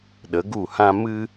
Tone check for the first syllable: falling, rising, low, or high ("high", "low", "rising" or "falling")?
rising